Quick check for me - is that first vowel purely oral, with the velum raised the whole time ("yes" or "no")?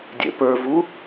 yes